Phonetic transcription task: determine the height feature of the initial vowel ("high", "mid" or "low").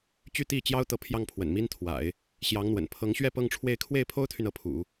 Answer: high